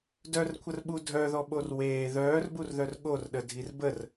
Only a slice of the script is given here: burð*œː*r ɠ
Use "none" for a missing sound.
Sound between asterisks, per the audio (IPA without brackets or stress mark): œ